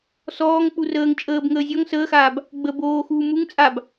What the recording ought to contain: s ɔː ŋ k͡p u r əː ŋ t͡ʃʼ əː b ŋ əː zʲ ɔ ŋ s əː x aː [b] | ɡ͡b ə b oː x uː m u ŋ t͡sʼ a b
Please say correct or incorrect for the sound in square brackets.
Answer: correct